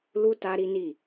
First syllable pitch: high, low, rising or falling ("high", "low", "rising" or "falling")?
high